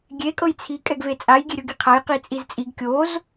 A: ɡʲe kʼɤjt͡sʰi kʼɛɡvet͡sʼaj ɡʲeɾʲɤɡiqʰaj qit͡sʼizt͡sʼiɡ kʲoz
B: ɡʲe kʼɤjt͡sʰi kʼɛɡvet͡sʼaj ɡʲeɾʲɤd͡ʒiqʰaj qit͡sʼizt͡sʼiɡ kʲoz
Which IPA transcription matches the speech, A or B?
A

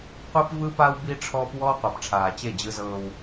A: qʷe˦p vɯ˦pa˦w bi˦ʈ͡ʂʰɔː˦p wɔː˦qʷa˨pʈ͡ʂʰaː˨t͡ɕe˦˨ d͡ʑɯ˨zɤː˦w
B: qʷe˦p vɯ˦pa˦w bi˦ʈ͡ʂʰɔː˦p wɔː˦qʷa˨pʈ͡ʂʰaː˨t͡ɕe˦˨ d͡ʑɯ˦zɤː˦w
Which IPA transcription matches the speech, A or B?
B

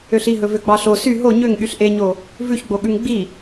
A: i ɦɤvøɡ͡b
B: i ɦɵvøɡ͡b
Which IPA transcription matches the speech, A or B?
B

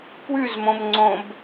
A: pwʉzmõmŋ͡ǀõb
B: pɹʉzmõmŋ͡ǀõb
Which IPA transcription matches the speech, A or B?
A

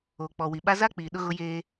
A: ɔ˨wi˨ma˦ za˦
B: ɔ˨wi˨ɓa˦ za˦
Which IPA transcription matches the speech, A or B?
B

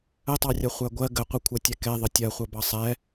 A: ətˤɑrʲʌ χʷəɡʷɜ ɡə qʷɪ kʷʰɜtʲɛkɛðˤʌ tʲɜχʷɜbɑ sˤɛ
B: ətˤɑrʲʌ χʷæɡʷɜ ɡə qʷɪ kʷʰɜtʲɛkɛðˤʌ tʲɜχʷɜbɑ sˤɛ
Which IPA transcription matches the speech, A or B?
B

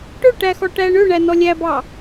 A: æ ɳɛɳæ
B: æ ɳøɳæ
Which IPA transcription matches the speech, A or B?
B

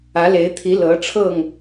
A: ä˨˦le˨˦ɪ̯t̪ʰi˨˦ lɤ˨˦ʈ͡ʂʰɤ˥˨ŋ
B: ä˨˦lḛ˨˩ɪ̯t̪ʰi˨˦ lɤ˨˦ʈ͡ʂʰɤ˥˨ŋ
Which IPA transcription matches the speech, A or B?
A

